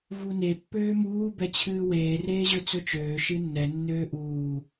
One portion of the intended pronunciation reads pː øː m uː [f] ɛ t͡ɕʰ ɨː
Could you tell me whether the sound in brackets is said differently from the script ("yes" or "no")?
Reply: yes